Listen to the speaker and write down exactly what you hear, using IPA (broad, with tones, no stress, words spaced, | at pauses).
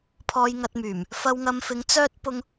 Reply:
pʰɔː˧jŋɐ˧t̚myː˨˩m | fɐ˧wŋɐ˧mfɪ˧ŋ t͡sœː˥t̚ pʊ˧ŋ